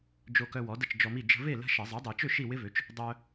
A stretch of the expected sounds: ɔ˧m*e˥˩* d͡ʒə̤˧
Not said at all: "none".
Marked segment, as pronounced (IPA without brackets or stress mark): i˥˩